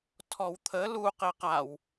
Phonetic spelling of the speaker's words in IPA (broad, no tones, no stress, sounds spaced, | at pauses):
tʰ ɔ w t̪ʰ ə l u q e q a w